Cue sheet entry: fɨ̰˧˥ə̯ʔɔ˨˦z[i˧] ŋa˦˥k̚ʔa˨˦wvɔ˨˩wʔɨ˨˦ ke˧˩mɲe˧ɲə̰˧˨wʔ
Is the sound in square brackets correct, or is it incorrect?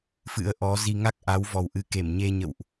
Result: correct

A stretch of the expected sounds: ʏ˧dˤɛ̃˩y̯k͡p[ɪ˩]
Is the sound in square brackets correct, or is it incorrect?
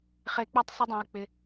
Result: correct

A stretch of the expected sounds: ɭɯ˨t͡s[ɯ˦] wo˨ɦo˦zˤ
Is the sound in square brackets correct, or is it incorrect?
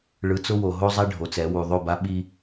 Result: incorrect: ʊ˦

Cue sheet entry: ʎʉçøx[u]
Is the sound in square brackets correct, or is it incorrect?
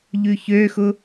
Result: incorrect: ʊ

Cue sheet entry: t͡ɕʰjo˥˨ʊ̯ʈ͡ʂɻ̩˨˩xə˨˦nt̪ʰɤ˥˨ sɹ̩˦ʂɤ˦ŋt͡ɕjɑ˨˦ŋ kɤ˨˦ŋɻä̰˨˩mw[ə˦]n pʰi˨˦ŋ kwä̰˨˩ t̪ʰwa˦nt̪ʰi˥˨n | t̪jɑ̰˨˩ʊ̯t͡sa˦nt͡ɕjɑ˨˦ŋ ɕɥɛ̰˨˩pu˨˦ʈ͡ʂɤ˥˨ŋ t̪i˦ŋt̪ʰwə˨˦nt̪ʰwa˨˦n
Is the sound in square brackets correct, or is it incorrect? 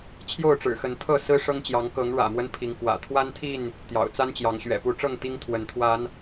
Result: correct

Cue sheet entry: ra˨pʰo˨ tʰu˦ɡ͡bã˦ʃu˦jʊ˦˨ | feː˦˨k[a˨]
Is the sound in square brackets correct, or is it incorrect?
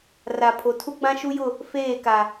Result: correct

